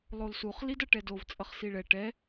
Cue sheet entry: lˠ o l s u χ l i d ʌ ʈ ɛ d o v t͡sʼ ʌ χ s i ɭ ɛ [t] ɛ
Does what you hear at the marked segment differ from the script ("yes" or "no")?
yes